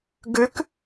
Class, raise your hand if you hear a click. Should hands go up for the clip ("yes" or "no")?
no